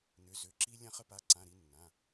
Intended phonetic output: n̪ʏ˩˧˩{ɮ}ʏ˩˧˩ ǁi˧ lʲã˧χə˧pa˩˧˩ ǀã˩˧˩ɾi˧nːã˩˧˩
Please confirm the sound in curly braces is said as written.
no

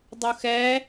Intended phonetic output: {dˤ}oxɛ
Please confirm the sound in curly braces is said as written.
yes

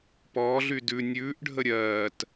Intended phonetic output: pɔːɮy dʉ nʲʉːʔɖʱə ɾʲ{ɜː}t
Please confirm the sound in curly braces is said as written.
yes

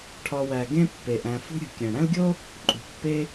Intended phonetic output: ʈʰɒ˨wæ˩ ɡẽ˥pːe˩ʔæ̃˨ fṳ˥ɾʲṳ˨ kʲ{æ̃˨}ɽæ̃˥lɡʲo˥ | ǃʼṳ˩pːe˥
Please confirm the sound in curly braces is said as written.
no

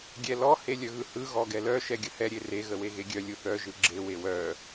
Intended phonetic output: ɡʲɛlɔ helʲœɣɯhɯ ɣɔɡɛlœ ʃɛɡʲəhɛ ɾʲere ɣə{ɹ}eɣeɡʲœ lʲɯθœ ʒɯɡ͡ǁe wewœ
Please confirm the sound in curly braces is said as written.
no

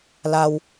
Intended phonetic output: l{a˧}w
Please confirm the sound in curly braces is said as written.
yes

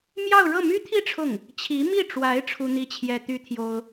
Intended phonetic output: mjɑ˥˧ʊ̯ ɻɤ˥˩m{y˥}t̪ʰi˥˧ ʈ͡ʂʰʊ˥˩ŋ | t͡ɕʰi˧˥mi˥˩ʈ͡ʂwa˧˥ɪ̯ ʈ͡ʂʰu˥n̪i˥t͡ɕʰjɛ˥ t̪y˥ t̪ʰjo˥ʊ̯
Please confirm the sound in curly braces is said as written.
yes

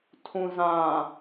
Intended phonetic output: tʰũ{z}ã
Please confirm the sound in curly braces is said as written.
yes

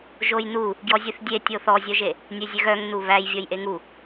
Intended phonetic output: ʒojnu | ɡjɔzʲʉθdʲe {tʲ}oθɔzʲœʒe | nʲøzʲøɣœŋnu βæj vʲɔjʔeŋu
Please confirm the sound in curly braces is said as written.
yes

